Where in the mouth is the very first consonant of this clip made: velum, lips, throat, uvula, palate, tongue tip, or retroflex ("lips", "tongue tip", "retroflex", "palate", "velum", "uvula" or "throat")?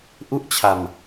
throat